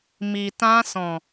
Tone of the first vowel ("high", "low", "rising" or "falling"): low